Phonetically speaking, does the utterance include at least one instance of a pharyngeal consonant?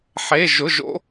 yes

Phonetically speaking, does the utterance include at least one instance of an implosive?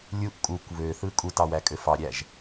no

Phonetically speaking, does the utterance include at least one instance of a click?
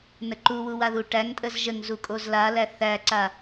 yes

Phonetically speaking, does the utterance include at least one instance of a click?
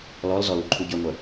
yes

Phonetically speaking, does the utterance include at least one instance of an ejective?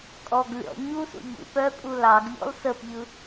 yes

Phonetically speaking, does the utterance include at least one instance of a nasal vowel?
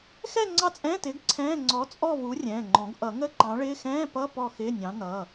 yes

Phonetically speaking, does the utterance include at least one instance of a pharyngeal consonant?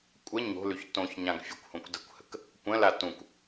no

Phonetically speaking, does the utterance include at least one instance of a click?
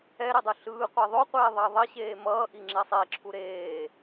yes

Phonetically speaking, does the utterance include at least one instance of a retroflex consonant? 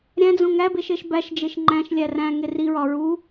no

